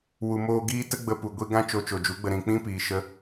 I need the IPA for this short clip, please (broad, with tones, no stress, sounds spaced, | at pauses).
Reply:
w u˨ m oː˧ ɡ iː˦ t ə˦ ɡ͡b ə˧ p u˨ ɡʷ i˧ ɡ ã˦ t͡ʃ o˧ t͡ʃ o˨ d͡ʒ u˨˦ ɡ͡b ə˧ ɾ ĩ˨ k͡p ĩ˦ p iː˨ ʃ ə˦